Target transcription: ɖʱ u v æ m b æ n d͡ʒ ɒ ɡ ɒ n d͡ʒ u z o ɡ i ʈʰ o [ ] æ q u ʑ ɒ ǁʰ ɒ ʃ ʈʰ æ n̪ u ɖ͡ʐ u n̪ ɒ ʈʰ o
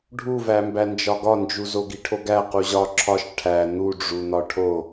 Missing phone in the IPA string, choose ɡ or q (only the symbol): ɡ